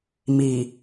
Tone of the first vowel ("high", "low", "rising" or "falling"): low